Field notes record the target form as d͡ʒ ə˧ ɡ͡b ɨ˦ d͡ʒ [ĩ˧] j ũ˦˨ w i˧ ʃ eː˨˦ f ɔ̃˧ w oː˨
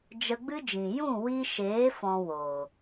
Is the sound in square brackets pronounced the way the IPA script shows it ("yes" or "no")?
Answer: no